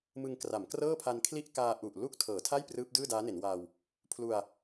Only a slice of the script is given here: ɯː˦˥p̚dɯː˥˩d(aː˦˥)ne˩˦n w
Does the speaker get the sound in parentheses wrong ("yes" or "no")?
no